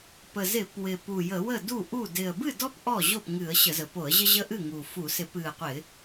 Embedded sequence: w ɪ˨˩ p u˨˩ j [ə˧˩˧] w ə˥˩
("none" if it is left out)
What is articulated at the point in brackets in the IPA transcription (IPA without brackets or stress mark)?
ə˧˩˧